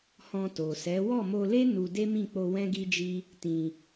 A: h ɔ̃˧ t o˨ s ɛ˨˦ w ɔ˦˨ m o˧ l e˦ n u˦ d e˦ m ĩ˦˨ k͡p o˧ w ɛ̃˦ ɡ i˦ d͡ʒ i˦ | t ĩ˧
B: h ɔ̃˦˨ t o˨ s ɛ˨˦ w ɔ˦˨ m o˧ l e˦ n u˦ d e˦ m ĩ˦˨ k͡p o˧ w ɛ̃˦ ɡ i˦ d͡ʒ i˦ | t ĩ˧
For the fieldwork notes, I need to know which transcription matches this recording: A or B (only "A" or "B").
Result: A